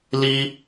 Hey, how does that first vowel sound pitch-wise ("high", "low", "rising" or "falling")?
high